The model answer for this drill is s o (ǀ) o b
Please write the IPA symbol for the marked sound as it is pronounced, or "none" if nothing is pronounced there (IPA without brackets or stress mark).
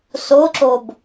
ǁ